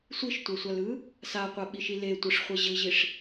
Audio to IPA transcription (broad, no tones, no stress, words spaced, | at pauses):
sʷiʃtʷɛsʷalɯ | saqʷaɓiʃi letʷɯʂχʷe ʑɯʑiʂ